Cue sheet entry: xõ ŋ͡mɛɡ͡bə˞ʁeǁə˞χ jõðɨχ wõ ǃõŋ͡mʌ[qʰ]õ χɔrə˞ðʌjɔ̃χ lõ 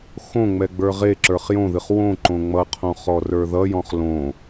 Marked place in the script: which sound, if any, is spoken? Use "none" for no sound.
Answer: qʰ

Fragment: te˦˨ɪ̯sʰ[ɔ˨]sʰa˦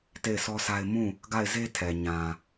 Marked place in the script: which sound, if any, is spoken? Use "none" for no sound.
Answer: ɔ˦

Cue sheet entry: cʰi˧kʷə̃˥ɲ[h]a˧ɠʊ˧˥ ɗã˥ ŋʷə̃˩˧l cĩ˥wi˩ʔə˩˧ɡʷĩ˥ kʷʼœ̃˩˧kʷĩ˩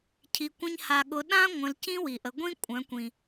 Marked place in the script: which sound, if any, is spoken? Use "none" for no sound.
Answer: h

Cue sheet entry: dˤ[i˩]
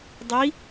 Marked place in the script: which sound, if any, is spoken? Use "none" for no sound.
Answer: i˧˥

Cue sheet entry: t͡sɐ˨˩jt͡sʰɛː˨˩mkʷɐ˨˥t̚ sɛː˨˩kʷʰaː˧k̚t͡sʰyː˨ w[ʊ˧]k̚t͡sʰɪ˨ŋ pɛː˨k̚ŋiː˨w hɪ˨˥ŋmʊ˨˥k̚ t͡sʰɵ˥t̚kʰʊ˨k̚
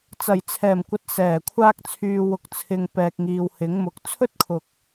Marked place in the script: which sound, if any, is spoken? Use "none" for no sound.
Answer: ʊ˨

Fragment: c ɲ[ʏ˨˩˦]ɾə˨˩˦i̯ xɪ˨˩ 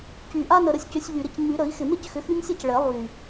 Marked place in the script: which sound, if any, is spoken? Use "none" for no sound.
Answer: y˨˩˦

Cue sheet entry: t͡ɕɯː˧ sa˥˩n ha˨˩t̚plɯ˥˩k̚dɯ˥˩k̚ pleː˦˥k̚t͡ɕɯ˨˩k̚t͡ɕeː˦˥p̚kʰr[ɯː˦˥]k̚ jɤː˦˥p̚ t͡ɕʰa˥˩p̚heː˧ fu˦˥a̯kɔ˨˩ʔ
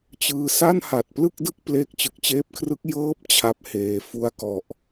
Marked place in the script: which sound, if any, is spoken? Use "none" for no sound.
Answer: ɯ˦˥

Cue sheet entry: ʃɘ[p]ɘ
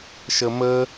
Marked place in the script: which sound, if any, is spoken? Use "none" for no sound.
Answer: m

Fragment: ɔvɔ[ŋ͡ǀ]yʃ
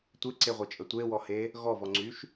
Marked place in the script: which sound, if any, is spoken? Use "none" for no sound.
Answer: ŋ͡ǀ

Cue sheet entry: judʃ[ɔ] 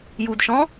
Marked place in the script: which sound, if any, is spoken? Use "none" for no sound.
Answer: ɔ̃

